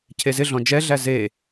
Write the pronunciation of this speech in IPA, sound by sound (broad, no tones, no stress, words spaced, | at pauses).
cʰezɪɮɔ̃ d͡ʒɛɮæ ze